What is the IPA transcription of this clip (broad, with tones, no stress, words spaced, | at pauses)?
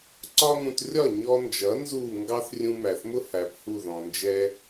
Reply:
ǀɒ˥ŋũ˧t rʲɒ˥˩ɲɔ˧nd͡ʒʌ˩˥ nzuː˥˩ ŋɡɑ˥θrʲũ˧mæ˩θmʊ˥ hæ˩˥phu˥˩ ðɔ̃˩nd͡ʒɛ˧